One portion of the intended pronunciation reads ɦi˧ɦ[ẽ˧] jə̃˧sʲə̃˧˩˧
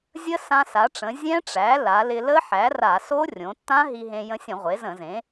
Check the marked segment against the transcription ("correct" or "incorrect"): correct